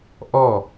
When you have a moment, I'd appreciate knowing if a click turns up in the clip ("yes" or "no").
no